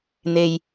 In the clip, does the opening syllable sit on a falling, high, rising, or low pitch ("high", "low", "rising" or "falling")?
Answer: low